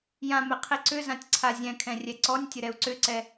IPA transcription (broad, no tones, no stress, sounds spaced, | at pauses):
j ã m ɛ qʰ i ǀ ʏ z ã tʲ ǀʰ a zʲ ɛ̃ kʰ ɛ̃ rʲ ɛ ǀ ɔ nʲ tʲ ə ɾ ɛ u̯ ǀ ʏ ǀ ɛ